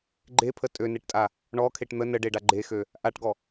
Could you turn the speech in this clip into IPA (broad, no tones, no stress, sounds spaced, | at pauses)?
ɡ͡ǃ e pʰ ə tʼ ø n e ʈ tʼ a | ɳ ɔ kʰ e ʈ n̪ ə n ə ɖ e ɖ a ɡ͡ǃ e x ø | ʔ a ʈ ɡ ɔ